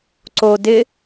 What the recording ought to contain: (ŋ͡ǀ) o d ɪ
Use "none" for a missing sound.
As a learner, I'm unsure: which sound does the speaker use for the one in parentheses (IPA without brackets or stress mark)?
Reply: ǀ